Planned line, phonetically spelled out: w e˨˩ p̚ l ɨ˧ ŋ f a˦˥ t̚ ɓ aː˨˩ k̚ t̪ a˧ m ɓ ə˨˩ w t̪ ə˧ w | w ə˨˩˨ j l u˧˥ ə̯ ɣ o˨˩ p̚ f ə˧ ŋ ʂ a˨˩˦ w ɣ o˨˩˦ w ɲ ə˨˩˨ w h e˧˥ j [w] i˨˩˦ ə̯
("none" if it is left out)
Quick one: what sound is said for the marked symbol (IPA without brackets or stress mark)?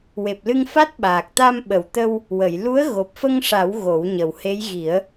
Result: ɣ